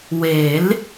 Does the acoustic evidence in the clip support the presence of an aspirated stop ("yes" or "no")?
no